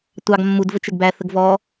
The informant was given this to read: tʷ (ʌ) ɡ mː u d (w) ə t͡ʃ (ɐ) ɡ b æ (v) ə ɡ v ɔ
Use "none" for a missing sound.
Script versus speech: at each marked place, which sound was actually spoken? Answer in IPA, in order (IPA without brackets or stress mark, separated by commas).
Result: ɑ, v, ə, θ